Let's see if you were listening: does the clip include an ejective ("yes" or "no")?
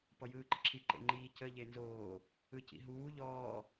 no